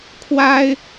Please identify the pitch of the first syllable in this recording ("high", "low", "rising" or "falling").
high